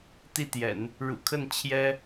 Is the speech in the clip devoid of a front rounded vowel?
yes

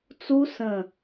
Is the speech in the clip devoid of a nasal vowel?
no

